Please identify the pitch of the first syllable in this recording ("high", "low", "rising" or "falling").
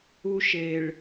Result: high